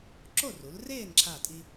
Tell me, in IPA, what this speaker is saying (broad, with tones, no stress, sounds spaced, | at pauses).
ǁ o˥˨ r u˩˧ l r eː˥˨ n ǁʰ aː˥˨ tʼ i˥